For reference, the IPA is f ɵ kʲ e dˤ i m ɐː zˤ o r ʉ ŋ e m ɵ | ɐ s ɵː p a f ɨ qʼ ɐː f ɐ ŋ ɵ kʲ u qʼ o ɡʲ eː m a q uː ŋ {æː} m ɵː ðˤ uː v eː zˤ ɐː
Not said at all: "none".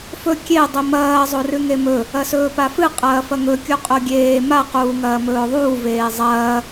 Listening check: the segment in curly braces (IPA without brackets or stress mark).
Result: ɐː